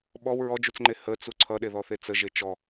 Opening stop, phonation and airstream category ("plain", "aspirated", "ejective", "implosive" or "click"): implosive